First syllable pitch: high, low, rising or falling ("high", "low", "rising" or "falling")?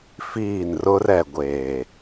falling